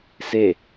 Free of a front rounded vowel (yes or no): yes